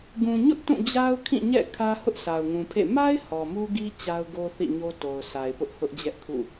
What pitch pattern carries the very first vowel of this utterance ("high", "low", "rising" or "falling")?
low